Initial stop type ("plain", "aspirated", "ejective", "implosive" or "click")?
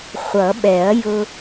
implosive